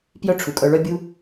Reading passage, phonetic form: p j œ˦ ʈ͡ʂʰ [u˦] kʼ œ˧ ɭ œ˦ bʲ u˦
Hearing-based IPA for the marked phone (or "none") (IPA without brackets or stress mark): u˨